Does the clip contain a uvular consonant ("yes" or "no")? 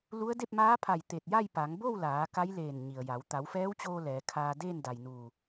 no